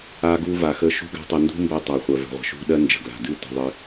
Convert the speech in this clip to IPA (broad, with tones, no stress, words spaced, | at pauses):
a˧ɡu˧va˨xə˧ ʃṳ˦ɡa̤˦ tˤə˧ ndṳ˦mbɜ˧ tˤa˨χʷɜ˨və̤˨ʁʷə̤˨ ʃṳ˦ ɗɜ˦nd͡ʒə̤˨ɡla̤˨ dɨ˦ tə̤˧ðˤɨ˧